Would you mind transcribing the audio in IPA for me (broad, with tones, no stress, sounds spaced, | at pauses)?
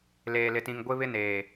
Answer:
l eː˨ l ɪ˨ t ĩ˨ ŋ ɡʷ ɪ˦ β ɪ˦ n eː˨